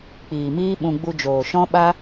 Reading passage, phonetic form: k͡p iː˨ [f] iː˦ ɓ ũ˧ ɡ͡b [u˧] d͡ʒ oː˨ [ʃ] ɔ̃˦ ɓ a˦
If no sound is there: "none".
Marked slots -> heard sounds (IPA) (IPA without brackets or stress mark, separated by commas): m, u˧, ʃ